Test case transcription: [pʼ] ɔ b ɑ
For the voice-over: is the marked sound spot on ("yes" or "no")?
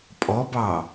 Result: yes